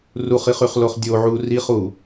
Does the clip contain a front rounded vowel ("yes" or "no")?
yes